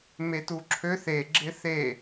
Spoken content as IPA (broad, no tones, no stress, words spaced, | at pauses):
metuǁʰøθ e ɡ͡ǁɪθe